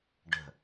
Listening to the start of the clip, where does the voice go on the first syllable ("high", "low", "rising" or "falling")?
low